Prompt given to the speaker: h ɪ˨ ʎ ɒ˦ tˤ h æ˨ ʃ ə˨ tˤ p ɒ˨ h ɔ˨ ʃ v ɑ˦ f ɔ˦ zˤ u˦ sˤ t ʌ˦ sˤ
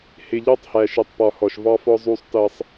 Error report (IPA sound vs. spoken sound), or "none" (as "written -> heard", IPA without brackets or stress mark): none